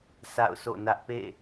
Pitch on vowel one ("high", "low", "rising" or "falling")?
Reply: falling